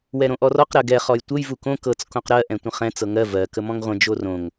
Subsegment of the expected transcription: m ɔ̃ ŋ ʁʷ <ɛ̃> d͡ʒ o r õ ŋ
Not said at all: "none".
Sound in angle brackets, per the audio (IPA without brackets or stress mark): ə̃